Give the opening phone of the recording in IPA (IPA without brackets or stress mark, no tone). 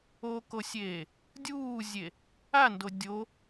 o